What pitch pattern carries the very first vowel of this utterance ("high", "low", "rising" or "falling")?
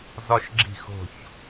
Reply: high